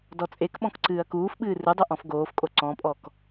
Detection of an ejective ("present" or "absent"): present